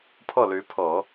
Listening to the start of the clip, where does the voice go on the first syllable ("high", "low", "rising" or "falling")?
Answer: falling